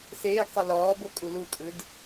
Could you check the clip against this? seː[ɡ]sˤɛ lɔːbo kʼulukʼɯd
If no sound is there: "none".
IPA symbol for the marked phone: ɡ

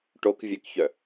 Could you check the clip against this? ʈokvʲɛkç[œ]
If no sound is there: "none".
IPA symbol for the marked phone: œ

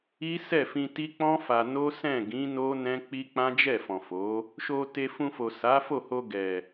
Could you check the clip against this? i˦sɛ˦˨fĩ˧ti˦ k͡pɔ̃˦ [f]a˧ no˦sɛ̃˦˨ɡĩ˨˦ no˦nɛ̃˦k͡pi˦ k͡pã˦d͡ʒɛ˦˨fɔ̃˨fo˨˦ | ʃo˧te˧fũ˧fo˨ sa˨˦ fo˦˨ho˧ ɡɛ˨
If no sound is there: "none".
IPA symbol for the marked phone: f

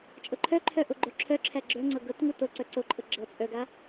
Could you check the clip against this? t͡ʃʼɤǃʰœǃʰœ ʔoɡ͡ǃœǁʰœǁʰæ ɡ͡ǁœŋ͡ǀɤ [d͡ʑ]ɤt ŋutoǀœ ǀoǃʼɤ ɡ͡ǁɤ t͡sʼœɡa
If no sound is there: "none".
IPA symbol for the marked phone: ɡ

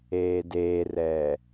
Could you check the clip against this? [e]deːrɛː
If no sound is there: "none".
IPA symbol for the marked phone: eː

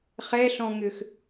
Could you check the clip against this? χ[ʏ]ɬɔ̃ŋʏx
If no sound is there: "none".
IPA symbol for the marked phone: ɛ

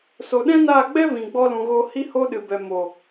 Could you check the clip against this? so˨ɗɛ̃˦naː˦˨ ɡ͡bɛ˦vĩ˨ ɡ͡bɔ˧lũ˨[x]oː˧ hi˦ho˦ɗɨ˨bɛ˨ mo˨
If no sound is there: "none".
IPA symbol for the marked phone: ɣ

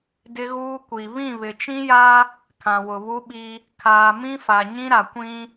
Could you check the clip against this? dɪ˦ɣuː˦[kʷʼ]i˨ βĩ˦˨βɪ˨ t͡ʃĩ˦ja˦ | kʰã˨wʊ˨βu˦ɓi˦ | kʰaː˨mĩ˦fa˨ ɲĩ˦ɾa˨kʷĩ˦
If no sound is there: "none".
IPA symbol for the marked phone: kʷ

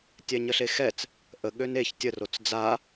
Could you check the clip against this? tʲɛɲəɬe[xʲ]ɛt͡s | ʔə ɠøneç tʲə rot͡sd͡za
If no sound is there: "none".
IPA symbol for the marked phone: x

